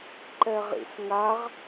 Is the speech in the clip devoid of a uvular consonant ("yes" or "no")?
no